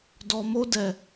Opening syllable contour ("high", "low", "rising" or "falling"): low